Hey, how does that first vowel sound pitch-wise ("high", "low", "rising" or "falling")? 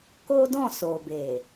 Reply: high